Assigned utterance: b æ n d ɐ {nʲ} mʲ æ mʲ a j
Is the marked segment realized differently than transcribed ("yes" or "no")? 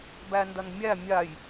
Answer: yes